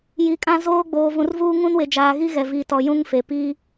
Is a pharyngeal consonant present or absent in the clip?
absent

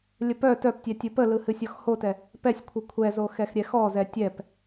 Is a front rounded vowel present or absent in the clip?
present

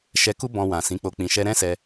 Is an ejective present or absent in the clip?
absent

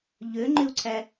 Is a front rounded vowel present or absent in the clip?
present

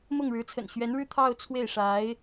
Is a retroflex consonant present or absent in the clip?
present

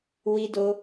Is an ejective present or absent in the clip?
absent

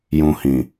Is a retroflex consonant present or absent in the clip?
absent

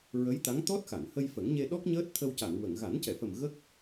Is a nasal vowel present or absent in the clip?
absent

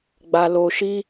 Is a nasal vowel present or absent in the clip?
absent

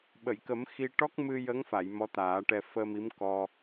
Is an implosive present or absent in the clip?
present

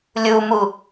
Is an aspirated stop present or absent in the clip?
absent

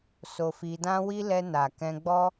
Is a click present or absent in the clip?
absent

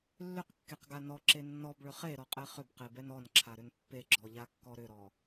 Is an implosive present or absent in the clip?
absent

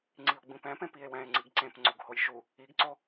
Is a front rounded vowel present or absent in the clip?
absent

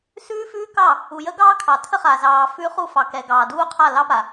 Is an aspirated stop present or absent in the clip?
present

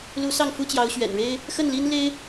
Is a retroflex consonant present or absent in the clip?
present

